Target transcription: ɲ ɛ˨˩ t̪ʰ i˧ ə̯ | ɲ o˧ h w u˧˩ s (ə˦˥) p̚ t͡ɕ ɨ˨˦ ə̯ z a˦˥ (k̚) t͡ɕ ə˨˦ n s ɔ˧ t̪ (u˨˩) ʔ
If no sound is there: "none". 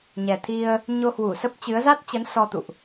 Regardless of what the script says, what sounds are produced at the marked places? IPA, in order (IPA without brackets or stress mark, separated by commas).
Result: ə˦˥, t̚, ṵ˧˨